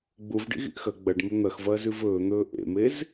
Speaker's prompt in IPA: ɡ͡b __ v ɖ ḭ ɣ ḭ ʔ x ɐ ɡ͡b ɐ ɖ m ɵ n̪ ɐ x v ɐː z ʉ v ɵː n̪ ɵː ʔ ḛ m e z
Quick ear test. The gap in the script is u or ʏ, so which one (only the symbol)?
u